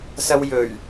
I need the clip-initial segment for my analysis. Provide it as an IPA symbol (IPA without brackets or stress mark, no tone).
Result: s